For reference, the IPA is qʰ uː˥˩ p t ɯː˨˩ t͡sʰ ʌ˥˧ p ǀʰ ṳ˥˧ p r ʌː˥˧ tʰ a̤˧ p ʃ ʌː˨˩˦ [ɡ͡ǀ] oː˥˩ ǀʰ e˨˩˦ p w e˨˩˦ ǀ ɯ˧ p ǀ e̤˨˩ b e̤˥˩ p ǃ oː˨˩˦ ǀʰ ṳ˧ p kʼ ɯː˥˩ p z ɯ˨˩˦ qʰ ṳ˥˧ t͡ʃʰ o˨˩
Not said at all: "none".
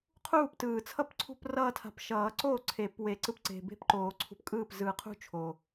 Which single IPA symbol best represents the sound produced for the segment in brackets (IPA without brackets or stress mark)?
ǀ